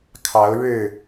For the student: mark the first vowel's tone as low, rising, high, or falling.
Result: rising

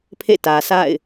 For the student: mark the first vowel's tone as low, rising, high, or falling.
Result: falling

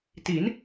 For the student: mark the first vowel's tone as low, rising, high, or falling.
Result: rising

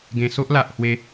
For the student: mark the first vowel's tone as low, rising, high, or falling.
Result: low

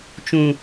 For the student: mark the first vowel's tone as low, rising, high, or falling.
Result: low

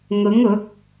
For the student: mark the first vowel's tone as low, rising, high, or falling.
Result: rising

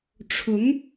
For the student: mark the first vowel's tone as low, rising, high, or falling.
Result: rising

